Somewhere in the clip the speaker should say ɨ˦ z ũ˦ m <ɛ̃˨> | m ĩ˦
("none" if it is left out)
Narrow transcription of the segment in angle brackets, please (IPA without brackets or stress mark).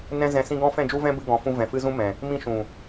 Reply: ɛ̃˨